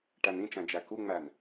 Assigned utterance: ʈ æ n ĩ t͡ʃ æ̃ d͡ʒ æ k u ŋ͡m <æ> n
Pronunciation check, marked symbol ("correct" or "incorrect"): correct